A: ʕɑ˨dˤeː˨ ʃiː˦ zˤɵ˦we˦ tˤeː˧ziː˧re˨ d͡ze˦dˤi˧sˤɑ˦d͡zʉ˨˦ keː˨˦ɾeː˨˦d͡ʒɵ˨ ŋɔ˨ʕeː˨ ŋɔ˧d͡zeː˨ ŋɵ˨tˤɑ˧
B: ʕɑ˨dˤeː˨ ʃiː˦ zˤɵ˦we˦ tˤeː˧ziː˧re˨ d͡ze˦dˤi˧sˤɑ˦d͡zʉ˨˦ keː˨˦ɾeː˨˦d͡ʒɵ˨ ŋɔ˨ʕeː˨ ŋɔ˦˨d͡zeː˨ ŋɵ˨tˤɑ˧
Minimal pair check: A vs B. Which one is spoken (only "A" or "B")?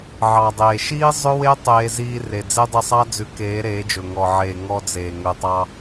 A